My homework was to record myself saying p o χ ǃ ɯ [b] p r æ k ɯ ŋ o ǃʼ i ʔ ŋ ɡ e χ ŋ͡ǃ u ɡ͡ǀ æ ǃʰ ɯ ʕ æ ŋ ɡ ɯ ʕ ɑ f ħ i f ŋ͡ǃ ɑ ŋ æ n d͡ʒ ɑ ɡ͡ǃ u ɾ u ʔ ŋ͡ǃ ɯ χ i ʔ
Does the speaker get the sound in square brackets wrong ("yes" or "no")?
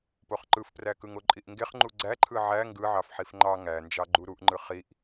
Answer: yes